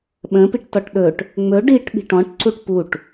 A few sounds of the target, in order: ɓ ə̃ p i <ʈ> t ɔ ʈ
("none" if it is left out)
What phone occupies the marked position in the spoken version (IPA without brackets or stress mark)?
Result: ʈ